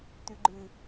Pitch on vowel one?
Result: low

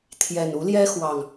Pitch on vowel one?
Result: low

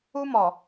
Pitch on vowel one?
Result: high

